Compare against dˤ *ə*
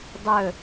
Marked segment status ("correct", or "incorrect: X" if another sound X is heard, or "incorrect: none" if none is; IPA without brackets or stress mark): incorrect: ɵ